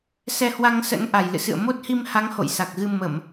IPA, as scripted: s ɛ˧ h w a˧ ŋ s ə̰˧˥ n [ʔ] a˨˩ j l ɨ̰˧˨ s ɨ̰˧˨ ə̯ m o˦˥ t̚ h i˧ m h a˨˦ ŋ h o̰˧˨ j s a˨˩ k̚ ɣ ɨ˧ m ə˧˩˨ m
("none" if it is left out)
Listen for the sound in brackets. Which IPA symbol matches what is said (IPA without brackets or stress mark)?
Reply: ʔ